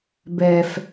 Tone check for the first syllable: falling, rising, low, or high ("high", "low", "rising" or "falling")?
low